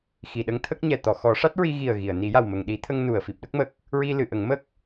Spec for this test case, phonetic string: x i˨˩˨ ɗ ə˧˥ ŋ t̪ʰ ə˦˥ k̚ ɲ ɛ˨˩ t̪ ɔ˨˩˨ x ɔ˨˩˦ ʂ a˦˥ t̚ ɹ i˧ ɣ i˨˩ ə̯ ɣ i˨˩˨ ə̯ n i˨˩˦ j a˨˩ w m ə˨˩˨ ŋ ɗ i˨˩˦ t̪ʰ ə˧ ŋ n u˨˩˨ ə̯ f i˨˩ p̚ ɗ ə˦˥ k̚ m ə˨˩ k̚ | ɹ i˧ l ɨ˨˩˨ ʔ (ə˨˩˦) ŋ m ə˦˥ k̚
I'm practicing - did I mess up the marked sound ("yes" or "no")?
no